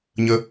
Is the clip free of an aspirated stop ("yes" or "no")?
yes